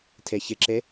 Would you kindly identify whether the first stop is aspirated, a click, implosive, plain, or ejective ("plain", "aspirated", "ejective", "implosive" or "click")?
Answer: aspirated